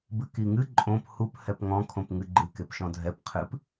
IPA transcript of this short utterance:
b ɨ k i ŋ ɨ ǃʼ õ p h u p h ɛ p ŋ ɔ̃ kʰ õ p ŋ ɨ ɡ͡ǃ ɨ k e p ʃ ɔ̃ dʱ ɛ p qʰ ɨ p

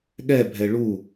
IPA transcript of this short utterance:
ɠ ɛ bʱ ɛ ɭ u

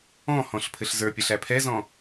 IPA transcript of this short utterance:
ɔ̃ h ɔ̃ ɬ pʰ ɘ ɬ z ə˞ pʲ ɐ ɬ æ pʰ ɛ z ɔ̃

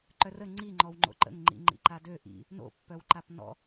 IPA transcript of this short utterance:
ǃ œ r ə ŋ͡ǀ i ŋ͡ǃ ɔ w ŋ͡ǃ o̰ ǃ ə̰ ŋ ŋ͡ǃ ḭ ŋ͡ǃ ḭ ǃ a d ø ʔ ḭ | n o̰ pː œ w ǃ a p n ɔ̰

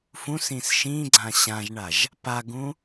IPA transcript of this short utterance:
f ũ s ĩ s ʃ ĩ ɡ͡ǀ ã ɕ ã ʒ ɳ a ʒ | p a ɡ ũ

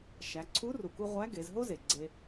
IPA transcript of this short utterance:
ʃ æ˩˧ ǀʰ u˧˥ r u˩ k u˧ ʁʷ æ˧˥ ɡ e˩˧ z ɦ o˥ z e˩ ɡ͡ǀ e˧

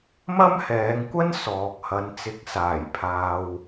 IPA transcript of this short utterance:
m ɐ˥ m h ɛː˨˧ ŋ kʷ ɐ˥ n s ɔː˨ k̚ h ɐ˨˧ n t͡s ɪ˨˥ k̚ s aː˨˩ j pʰ aː˨ w

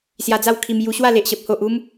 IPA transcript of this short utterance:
s j a˧ d͡z a˥˧ w kʰ i˧ m j u˧ ɕ w a˥˧ l e˨ ʔ ɕ ə˨ p̚ h o˨ ʔ u˧ m

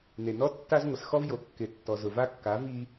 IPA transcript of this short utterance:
n e˨ n ɔ˦ tː a˦ z ŋʷ ɪ˨ s x ɔ˦ v j o˨ kː ɪ˨ tː ɔ˨ z ʊ˨ v a˦ kː a˨˦ v i˦

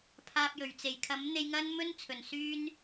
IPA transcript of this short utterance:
pʰ aː˧ p̚ j ɵ˨˩ ɥ t͡s e˨˩ j kʰ ɐ˨˥ m n̪ e˧ j ŋ ɐ˥ n m ɵ˥ n t͡sʰ ɵ˨˩ n s yː˧ n

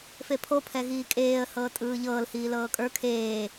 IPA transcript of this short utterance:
f e pʰ o pʰ ɛ ɣ iː kʼ eː ə̯ h ɤː tʼ ɯː ʎ ɤː l h iː l ɤː kʼ ə˞ kʰ eː

